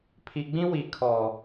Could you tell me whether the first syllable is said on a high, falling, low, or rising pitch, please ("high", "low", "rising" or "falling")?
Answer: low